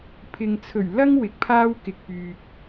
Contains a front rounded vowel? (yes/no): yes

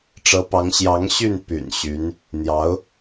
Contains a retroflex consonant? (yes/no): yes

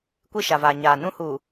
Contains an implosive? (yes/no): no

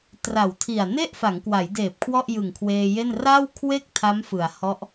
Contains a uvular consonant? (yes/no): no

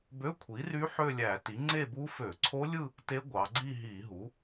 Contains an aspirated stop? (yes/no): yes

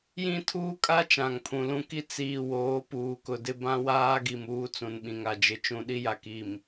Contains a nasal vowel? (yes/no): yes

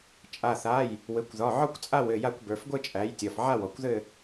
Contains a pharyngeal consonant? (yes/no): yes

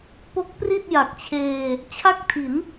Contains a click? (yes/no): no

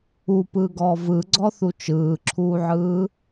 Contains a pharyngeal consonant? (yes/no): yes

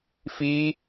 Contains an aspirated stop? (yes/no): no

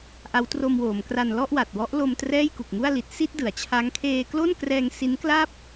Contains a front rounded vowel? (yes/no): no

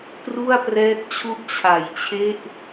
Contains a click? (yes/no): no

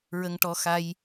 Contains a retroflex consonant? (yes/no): yes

